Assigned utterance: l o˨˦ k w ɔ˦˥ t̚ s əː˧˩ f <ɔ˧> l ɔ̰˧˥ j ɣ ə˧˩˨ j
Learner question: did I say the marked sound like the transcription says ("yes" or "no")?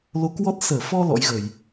yes